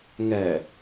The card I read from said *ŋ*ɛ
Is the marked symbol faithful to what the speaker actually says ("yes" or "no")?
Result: yes